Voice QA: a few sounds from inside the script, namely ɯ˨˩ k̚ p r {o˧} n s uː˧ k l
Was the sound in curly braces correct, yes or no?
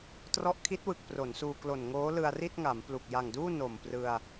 no